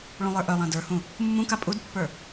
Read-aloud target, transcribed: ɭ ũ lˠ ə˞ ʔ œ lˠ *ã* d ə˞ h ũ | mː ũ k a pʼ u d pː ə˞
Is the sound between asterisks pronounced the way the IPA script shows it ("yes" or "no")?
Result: yes